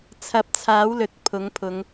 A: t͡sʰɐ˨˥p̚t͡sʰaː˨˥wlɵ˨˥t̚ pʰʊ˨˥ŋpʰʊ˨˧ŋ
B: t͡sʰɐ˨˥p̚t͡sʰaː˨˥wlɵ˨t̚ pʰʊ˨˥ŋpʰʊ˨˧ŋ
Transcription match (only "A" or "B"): B